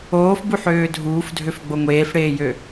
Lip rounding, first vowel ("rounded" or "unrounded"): rounded